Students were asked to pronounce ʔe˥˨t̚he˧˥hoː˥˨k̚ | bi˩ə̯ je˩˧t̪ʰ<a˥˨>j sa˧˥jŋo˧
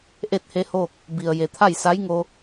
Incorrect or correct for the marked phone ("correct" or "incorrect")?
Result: correct